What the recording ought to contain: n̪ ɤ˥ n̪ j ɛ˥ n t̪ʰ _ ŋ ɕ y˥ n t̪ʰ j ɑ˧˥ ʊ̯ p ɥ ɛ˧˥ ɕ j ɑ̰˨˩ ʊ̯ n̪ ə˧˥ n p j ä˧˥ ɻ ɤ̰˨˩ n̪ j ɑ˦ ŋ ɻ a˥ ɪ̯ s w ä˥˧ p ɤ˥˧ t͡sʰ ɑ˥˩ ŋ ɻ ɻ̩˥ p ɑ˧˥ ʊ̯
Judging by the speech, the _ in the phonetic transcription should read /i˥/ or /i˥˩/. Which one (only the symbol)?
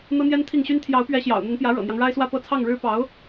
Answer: i˥˩